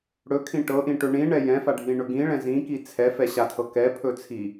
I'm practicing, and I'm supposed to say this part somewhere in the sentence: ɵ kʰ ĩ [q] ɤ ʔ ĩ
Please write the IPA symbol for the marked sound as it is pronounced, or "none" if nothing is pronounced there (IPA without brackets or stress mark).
ʈ